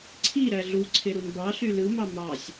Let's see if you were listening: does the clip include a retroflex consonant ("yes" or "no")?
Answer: no